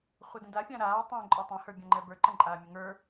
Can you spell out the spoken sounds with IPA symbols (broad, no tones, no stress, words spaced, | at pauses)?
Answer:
χʷədə̃dafʲã ɾaː tˤɛ̃ ǃʼotˤɛ̃hə˞ bʲãŋ͡ǃɛbə˞ ǃə̃ǃʼaːmʲəŋə˞